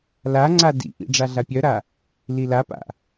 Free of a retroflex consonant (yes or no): no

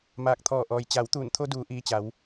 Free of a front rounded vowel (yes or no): yes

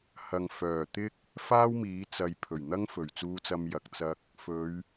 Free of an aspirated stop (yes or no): no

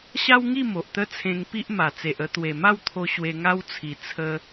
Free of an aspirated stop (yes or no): no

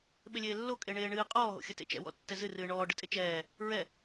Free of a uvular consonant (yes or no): no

